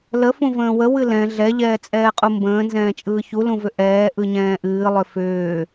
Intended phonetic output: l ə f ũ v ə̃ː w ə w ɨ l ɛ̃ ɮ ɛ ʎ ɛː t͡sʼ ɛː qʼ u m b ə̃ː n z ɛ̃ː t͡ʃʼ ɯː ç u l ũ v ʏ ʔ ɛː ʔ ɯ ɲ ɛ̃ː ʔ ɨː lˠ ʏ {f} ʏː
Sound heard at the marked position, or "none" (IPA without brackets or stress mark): f